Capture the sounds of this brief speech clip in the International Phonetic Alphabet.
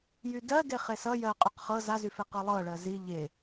jydɜ deχesʌ jɜqʼyq χɤ zazyfe qɤlˠɤɭɜ zi ʎe

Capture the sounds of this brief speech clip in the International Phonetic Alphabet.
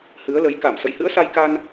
hɨ˨˦ə̯lə˨˦j ka˧˩m sə̰˧˨jhɨ̰˧˥ə̯sa˧j ka˧n

